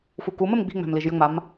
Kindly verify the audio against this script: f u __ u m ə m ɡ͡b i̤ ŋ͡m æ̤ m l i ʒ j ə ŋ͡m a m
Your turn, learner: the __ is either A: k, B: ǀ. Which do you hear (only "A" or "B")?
A